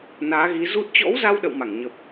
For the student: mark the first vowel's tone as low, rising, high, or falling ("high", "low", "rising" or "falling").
rising